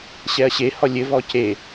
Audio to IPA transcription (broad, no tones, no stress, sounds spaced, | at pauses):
ɕ ɛ ɐ̯ ɕ e h ɔ lʲ ɘ v ɔ c e